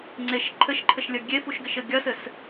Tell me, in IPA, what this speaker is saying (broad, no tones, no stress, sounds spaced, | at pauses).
ŋ͡ǀ e ʃ ǃʰ ɘ ʃ ǃʰ ɘ ʃ lʲ ɐ ɡʲ e f u ʃ ɡ ɘ ʃ ɘ ɡʲ ɐ s ɘ s